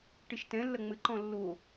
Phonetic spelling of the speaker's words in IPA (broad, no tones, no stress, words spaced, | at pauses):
ʈeʃtɛ̃lːɐ ŋ͡mɘǃɔ̃ lːo